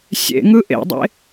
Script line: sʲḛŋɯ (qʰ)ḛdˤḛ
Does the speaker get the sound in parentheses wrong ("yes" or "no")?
yes